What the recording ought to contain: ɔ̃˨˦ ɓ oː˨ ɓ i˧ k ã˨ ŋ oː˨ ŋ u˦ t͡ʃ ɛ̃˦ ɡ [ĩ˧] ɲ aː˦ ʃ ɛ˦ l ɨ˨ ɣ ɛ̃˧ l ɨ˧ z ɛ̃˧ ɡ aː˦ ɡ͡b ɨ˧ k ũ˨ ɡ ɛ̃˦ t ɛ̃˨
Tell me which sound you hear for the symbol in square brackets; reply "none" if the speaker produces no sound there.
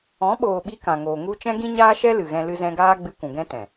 ĩ˦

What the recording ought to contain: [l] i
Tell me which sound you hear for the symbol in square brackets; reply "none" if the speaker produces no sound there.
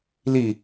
l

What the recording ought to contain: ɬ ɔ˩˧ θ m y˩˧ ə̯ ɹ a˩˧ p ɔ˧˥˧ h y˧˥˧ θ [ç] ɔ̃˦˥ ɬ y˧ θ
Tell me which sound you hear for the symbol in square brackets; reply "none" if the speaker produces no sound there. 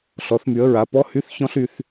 ç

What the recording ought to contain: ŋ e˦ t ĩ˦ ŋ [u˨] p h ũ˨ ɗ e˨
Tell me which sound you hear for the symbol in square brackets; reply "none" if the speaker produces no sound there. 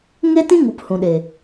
u˨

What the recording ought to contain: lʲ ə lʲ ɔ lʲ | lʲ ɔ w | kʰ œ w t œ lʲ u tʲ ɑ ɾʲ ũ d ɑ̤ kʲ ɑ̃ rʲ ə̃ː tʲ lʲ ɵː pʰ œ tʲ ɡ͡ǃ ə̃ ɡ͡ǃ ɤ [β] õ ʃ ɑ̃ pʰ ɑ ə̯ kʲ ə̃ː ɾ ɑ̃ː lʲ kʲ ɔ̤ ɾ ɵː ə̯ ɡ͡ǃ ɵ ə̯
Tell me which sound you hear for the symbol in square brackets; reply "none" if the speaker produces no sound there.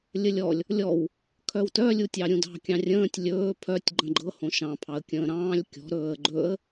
h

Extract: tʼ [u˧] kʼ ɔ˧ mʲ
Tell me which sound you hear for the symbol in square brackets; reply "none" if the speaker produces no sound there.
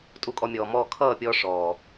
u˧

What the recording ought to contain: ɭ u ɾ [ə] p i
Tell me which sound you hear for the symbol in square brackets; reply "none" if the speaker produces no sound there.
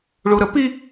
ə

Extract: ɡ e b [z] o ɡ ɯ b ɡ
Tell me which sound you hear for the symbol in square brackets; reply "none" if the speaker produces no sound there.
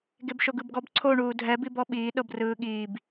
ʃ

